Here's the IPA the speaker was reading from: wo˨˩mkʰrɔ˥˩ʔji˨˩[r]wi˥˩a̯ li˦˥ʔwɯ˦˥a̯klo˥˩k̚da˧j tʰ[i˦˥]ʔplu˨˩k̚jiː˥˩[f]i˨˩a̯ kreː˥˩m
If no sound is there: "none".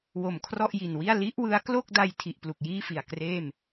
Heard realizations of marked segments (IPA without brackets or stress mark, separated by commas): n, i˨˩, f